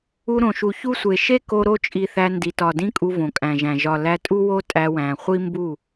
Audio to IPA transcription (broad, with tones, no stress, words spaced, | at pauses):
u˧ɾõ˨ʃu˨ çu˦sʷe˨ ʃe˦ko˧ɾo˧t͡ʃʼi˨ θæ˧ ndi˨tɒ˨dĩ˦kʼu˧ võ˨kʼæ̃˨ʒæ̃˨ ʒɒ˨ læ˧tʼu˦wo˦ tʼæ˧wæ̃˨ χʷi˦mbu˦˨